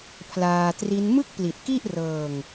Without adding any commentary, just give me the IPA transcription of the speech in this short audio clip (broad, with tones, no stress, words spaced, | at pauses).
pʰlaː˧tri˦˥n mɯ˥˩k̚pli˨˩t̚ki˥˩ʔ rɤː˧ŋ